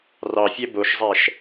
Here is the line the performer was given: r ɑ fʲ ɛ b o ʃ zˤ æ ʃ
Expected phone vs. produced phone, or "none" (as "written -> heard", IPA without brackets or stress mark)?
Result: none